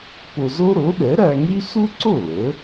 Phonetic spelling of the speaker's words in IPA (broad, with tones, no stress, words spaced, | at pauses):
po˧zo˥ ɾo˩˥ɗɛ˩˥ɾæ˧ŋy˥ su˥ǀo˥˩ lə˩˥